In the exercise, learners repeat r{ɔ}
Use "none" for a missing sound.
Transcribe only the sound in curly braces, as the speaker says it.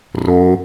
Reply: o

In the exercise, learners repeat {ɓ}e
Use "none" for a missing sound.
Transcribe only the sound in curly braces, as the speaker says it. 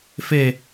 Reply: f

